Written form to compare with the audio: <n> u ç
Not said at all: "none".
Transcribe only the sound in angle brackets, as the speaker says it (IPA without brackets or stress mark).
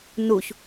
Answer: n